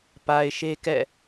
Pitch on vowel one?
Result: low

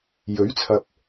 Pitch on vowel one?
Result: rising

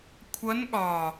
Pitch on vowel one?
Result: rising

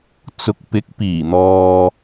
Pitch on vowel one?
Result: rising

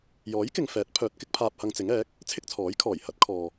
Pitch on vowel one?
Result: rising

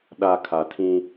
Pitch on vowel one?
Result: low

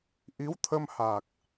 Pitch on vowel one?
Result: rising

